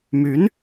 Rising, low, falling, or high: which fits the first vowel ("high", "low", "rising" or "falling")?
rising